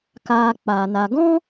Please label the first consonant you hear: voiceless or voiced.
voiceless